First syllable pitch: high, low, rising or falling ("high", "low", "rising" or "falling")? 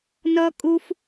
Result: high